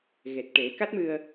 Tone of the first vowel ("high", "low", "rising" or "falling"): low